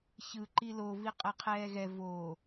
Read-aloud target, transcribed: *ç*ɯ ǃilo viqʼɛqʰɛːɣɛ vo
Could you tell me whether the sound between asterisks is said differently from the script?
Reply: no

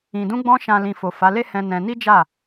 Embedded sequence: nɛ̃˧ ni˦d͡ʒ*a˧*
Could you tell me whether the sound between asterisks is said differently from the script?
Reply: yes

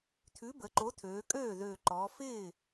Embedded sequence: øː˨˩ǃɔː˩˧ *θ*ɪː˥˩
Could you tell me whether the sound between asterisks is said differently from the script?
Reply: yes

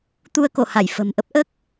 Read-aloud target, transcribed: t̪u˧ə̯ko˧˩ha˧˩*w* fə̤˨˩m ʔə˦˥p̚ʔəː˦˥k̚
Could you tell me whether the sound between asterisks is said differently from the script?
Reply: yes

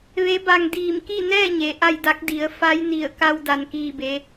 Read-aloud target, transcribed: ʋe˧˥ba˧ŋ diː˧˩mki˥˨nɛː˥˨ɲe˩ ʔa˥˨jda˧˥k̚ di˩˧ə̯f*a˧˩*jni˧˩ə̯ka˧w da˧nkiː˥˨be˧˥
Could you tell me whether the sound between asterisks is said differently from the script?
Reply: yes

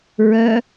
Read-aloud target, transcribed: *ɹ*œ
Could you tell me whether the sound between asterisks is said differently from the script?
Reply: no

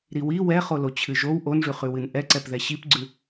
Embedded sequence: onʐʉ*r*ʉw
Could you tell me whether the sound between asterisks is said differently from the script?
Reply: yes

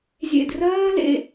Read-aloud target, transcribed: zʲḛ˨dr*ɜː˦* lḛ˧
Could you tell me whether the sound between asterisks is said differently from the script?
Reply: no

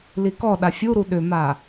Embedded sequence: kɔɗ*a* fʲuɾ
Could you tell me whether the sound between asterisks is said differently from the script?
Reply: no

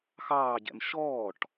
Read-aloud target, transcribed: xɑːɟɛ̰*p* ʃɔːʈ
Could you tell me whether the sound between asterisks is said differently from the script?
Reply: yes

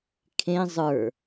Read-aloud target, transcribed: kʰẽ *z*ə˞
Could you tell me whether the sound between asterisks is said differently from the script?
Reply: yes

